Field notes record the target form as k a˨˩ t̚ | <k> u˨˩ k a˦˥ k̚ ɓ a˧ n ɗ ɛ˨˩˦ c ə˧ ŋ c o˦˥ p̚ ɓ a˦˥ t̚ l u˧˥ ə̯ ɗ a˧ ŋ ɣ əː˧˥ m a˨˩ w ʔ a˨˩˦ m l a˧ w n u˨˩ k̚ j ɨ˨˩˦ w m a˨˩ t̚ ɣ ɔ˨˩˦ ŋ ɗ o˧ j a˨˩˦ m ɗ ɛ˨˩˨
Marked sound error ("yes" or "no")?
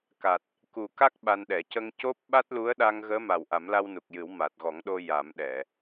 no